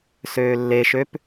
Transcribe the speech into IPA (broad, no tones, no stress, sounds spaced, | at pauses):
s øː lː e ʃ ø p